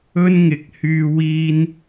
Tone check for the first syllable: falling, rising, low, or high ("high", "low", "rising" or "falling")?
high